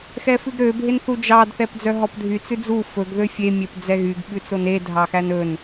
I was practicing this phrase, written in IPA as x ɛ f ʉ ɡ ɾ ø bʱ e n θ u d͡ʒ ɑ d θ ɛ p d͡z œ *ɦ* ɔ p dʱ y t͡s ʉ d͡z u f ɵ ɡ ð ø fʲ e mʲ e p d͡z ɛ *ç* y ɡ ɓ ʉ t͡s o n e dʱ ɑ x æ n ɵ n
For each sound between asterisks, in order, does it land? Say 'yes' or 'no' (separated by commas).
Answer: yes, no